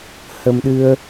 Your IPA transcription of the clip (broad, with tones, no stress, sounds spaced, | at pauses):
h ə˧ m ɗ ɨ˧ ə̯